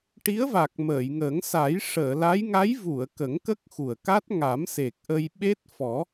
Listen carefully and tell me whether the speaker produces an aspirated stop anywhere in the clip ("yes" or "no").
no